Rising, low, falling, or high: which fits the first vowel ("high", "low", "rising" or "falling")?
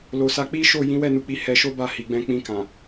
low